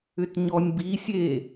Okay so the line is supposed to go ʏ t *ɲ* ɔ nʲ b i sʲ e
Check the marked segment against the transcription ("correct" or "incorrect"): correct